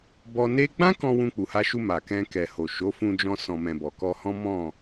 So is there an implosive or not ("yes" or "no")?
no